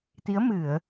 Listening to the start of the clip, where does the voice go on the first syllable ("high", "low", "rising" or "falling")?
rising